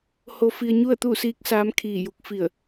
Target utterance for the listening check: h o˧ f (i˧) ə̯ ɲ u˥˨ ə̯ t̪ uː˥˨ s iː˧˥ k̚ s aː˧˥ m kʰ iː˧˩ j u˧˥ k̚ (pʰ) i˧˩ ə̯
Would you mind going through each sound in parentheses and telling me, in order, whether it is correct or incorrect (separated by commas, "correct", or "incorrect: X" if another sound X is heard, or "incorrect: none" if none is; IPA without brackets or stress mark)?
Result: correct, incorrect: f